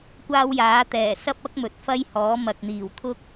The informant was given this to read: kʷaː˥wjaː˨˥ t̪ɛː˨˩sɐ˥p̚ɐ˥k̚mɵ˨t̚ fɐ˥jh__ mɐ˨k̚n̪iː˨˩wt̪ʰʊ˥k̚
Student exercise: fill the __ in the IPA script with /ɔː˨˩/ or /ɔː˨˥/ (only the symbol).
ɔː˨˥